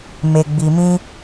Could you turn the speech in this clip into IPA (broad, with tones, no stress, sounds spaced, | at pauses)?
m e˨ ɡ͡b i˨ m ĩ˧